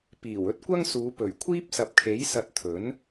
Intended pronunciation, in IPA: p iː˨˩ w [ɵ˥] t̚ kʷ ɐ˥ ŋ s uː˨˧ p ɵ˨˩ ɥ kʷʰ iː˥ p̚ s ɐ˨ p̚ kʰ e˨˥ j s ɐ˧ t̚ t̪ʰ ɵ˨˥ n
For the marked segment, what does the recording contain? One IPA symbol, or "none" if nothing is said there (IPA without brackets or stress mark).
ɵ˥